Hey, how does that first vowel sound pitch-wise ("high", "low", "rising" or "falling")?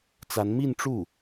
rising